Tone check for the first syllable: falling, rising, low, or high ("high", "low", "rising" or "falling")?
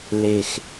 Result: falling